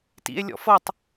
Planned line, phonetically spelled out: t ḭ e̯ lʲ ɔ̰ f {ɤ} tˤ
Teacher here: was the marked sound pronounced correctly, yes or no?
yes